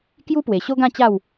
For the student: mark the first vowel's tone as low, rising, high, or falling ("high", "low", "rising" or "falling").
high